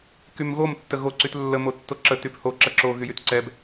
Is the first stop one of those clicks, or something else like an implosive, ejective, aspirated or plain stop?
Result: plain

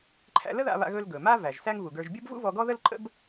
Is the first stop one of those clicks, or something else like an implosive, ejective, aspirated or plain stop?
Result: click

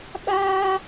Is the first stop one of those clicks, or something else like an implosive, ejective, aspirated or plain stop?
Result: implosive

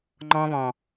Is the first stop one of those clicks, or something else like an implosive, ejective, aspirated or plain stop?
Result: click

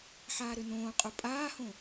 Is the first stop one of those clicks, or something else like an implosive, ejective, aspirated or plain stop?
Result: ejective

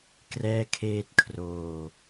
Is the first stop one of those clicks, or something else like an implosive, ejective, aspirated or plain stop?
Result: plain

